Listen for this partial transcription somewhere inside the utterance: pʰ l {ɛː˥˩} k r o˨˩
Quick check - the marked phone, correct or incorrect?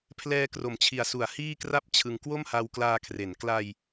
incorrect